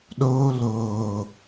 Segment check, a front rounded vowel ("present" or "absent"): absent